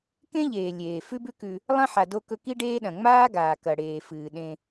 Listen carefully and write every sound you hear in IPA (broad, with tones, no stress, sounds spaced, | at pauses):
k ẽ˥ ʎ eː˩ lʲ eː˩ f ʉ˦ b ʉ˦ k ʉ˨ | lˠ ɐ̃˥ ħ a˨ d o˦ k ɵ˦ k i˦ ɖ eː˦ ɗ ɐ̃˩ ŋ͡m aː˥ ɡ aː˩ k ɐ˩ ɽ eː˩ f ɨː˩ ɗ ẽ˨